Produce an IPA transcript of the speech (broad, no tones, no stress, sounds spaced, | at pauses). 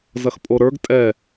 z ɐ x pʼ o ɾ ə˞ ɡ tʼ ɛ